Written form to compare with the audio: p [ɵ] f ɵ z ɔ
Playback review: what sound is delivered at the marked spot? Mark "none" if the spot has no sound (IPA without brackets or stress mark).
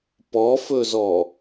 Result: ɔ